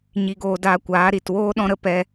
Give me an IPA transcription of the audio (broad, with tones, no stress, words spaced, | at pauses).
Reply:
ɲi˧ɡoː˧ daː˧kʷaː˨˦ ɾi˨twoː˦ ɗɔ̃˧ɾə˧ pɛ˧